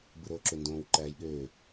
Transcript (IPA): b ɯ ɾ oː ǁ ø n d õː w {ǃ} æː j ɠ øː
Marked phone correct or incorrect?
correct